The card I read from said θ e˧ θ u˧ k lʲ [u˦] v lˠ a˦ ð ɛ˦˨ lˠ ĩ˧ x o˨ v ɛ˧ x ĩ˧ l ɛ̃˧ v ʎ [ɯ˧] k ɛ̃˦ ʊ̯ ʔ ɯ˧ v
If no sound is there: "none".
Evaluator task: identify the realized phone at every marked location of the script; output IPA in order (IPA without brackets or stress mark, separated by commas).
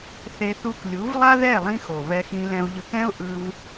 u˨˦, ɯ˧